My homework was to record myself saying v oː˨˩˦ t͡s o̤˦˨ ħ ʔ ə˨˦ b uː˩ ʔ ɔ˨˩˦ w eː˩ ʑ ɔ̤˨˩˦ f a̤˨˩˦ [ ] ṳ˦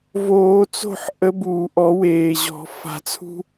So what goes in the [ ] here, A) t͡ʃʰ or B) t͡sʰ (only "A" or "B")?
B